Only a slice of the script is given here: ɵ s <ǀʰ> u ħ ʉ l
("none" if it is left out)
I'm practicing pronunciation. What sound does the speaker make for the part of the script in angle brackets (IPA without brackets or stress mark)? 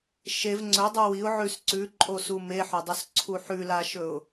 ǀʰ